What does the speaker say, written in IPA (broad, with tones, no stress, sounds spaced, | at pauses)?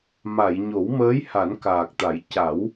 m a˨˩˨ j ɲ o˨˩˦ w m əː˧˥ j h a˨˩˦ n k aː˨˩ k̚ t̪ a˨˩˦ j c a˨˩˦ w